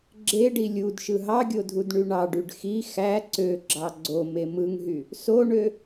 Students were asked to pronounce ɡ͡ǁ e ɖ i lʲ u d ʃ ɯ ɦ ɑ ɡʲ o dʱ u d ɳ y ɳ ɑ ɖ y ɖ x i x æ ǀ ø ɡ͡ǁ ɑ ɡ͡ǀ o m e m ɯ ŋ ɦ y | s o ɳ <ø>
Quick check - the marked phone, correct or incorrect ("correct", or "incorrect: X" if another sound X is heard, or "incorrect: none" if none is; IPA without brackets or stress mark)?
correct